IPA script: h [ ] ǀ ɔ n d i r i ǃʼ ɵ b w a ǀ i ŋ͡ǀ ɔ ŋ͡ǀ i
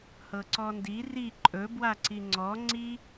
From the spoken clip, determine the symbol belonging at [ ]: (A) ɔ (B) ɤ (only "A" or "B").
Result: B